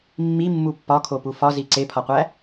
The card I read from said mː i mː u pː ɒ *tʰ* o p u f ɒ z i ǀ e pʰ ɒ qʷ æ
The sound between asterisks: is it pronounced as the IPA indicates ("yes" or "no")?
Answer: no